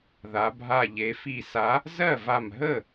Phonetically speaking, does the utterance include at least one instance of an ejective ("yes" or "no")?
no